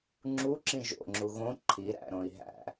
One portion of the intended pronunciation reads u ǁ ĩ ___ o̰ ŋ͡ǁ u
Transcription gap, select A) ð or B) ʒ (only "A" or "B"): B